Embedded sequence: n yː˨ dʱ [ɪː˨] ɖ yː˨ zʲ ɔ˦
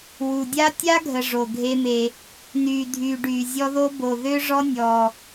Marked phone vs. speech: incorrect: yː˨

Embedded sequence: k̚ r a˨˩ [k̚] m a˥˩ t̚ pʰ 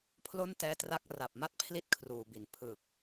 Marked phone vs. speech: incorrect: p̚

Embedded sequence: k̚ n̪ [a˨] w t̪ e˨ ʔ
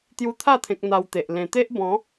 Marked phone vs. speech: incorrect: a˧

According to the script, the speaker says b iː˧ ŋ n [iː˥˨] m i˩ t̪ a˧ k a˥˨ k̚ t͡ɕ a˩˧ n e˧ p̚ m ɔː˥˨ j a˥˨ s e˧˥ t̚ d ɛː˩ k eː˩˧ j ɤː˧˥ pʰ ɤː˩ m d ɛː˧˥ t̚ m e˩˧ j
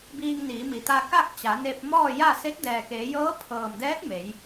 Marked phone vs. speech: incorrect: iː˩˧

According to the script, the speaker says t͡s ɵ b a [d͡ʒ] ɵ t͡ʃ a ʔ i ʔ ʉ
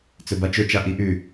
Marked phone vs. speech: incorrect: t͡ʃ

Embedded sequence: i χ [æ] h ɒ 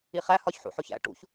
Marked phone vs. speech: correct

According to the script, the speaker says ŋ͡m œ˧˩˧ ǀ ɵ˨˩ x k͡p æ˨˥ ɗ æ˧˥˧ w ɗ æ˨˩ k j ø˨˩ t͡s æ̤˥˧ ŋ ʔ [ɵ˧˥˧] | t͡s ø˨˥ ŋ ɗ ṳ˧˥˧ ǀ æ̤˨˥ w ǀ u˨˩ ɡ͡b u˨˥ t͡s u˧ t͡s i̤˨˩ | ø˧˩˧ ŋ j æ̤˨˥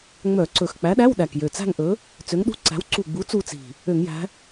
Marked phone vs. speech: incorrect: ɵ˨˥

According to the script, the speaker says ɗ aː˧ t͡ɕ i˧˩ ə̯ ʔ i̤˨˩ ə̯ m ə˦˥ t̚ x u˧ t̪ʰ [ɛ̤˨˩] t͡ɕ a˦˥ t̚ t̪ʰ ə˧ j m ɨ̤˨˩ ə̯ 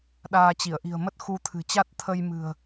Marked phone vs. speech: incorrect: ɨ̤˨˩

